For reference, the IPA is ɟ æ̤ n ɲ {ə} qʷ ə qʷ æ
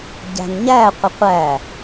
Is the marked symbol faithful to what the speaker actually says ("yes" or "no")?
no